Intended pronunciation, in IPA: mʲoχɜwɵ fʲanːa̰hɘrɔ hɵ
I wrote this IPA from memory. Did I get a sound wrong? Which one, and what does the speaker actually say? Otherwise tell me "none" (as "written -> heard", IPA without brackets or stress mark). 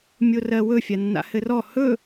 χ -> r